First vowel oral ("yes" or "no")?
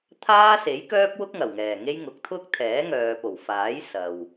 yes